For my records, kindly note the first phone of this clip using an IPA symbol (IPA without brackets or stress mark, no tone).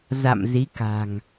z